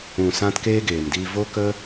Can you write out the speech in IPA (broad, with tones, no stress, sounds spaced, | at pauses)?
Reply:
ũ˨ s ã˦ t k eː˦ ɡ eː˨ m d iː˧ v o˦ k ə˦